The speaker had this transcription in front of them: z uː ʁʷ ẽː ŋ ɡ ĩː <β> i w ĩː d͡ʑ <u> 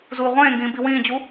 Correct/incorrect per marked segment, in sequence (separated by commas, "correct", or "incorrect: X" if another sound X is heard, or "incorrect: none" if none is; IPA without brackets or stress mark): incorrect: b, correct